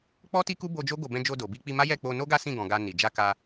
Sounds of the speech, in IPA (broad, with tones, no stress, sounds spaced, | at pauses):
k͡p ɔ˦ t i˦ k u˦ b o˧ d͡ʒ o˦ ɡ o˧ b ɛ̃˧ d͡ʒ o˧ d o˨ b i˧ k͡p i˧ m a˦ j ɛ˦˨ k͡p o˧ n o˦ ɡ a˦ s ĩ˦˨ ɡ ɔ̃˨ ɡ a˧ n i˨ d͡ʒ a˧ k a˧